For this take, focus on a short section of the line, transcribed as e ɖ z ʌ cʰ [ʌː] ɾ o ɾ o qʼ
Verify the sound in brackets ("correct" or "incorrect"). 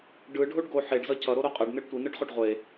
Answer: incorrect